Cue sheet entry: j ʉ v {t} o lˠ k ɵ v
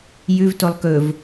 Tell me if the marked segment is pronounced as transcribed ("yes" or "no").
yes